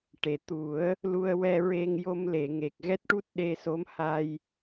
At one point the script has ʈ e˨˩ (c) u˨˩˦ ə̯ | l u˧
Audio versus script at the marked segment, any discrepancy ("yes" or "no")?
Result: yes